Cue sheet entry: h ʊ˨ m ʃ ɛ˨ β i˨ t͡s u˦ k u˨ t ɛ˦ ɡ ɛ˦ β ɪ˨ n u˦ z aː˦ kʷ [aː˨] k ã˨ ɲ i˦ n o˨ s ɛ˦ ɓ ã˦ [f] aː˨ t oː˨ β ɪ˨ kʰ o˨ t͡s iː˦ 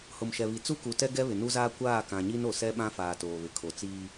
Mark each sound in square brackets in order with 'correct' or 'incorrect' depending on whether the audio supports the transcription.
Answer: incorrect: aː˦˨, correct

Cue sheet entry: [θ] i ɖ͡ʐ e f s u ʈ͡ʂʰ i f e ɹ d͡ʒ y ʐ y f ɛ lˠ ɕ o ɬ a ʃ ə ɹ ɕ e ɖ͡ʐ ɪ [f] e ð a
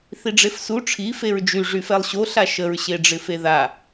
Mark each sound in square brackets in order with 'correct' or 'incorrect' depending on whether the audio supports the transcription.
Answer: correct, correct

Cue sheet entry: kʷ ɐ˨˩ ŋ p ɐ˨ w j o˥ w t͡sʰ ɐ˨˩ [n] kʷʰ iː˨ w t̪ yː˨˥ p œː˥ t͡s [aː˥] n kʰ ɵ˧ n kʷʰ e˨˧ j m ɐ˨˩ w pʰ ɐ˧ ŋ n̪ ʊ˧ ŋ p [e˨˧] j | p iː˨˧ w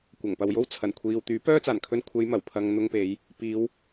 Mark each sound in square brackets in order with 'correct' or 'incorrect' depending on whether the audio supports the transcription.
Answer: correct, incorrect: aː˨˩, correct

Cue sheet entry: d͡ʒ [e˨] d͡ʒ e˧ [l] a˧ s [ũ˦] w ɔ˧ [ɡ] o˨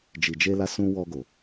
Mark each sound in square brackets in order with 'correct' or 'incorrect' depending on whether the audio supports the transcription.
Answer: incorrect: i˨, correct, incorrect: ũ˧, correct

